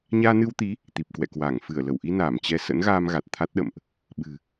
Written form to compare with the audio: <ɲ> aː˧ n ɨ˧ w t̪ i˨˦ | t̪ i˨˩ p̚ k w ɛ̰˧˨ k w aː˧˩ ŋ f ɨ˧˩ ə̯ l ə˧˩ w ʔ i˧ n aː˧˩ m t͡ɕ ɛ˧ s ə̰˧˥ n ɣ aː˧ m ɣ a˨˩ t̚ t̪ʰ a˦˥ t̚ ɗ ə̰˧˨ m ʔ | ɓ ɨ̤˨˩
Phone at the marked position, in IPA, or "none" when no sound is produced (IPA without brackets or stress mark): ɲ